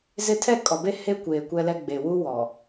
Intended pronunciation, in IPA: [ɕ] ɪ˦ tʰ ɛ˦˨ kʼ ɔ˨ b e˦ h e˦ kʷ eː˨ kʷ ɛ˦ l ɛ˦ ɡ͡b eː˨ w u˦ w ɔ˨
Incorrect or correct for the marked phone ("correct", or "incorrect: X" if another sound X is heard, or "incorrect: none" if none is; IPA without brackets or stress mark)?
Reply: incorrect: z